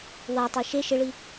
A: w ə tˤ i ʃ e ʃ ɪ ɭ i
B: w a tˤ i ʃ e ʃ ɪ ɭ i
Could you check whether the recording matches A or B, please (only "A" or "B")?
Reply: B